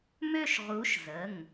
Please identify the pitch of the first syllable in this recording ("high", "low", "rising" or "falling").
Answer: falling